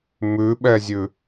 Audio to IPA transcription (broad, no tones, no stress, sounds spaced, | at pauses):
m ʉ ɓ ɛ zʲ ʉ